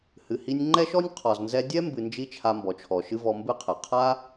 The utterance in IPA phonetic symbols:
h ɨ˨ h i˧ nʲ ŋ͡ǃ ɛ˦ ʃ ɔ˦ nʲ qʰ ɔ˨ z n z ɛ˧ dʲ ɛ˦ m b ɨ˧ n d͡ʒ i˦ t͡ʃʰ a˧ m b ɔ˨ t͡ʃʰ ɔ˨ ʃ ɨ˧ v ɔ˧ m b ɨ˦ qʰ ɛ˨ qʰ a˦

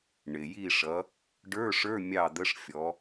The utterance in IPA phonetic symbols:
ɳ ɪ˩ j i˦˨ ʂ ʌ˨˦ | ɖ ə˞˧˥˧ ʂ ə˞˧˥˧ mʲ ɑ˦˨ d̪ ə˧˥˧ ʂ fʲ ɔ˨˦

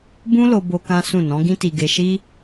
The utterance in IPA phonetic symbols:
b ũ˦ l o˧ b o˧ k ã˦ s ũ˦˨ n ɔ̃˨˦ ɡ ĩ˦ t i˧ ɡ e˧ ʃ i˦

